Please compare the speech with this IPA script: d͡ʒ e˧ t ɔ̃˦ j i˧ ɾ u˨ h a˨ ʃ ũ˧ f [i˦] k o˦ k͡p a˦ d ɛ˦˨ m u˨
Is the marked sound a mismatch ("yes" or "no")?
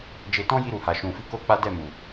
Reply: no